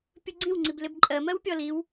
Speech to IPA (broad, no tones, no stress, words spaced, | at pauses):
pʲuɡ͡ǀĩwŋ͡ǀib lɪbǃʼɜmɜw pʲɔliw